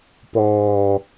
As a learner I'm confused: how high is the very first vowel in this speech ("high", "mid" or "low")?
mid